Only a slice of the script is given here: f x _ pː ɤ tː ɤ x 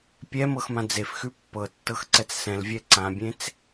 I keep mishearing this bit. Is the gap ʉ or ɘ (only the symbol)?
ʉ